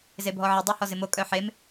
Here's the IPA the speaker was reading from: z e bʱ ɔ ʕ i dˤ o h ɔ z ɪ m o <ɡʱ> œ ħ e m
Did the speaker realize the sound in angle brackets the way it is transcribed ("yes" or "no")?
no